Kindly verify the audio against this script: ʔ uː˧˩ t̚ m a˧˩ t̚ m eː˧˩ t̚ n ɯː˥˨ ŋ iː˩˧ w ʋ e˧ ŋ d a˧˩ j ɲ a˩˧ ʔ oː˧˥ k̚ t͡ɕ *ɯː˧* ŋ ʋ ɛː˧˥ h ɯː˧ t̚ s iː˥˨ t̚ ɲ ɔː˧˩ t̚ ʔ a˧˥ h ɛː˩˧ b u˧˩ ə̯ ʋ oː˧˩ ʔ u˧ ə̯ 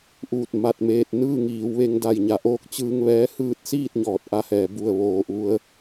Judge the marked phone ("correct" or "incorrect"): correct